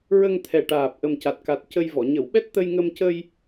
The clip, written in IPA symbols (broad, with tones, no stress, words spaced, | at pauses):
ɹə˧ŋt̪ʰɛ˨˩ʈaː˨˩p̚ ʔə˨˩mca˨˩t̚ka˨˩t̚ cə˧jvɔ˨˩˨ ɲə˨˩˨wɓɛ˦˥t̚ t̪ə˧jŋə˧m cə˧j